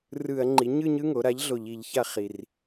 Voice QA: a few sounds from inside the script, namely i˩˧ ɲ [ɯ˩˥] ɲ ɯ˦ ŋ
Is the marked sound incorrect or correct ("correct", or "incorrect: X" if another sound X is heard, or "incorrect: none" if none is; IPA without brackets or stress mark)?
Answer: incorrect: ɯ˦˨